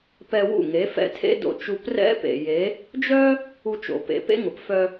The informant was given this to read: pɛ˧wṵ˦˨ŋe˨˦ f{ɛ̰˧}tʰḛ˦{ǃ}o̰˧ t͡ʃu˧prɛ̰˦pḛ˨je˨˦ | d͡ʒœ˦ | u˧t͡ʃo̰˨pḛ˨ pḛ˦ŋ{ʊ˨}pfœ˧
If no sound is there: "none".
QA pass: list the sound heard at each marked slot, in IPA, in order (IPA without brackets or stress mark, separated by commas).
ɛ̰˧, d, ʊ˨